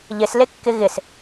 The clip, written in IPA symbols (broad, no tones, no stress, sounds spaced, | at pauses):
ʎ ɪ s l e kː ɪ ɣ ɪ s